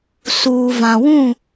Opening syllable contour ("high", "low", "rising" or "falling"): low